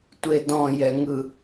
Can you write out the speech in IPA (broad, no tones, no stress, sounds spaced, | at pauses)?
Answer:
tʷ e d ɔ̃ j ɛ ŋ ɯ